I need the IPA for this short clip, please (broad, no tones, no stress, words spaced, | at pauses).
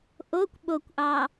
ʔokʷ ɓokʷʔɑ